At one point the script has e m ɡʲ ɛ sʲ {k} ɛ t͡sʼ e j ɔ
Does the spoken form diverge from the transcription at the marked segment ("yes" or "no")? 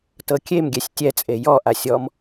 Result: yes